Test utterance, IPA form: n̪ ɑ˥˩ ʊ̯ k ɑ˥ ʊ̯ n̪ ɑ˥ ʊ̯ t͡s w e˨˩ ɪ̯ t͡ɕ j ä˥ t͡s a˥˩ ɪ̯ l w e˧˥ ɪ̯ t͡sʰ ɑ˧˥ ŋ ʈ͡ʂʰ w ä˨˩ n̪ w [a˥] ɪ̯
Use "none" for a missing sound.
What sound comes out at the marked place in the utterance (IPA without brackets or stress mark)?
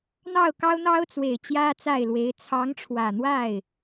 a˥˩